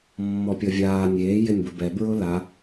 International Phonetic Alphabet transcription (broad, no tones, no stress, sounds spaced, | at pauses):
mː ɔ pʲ ɔ vʲ aː nʲ eː j ɪ nʲ b ʊ b ɛ b ɹ ʊ l a